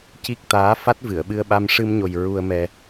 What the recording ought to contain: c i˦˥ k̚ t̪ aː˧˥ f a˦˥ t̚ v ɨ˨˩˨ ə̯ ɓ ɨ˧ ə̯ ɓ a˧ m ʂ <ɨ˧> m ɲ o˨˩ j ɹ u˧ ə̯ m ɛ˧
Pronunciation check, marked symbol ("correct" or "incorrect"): correct